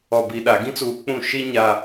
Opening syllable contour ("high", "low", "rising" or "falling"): low